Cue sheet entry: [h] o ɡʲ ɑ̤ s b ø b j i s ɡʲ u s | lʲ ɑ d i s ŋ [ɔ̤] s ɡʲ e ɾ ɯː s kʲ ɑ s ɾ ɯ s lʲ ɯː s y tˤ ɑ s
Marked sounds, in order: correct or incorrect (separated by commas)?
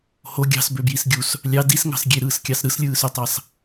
correct, incorrect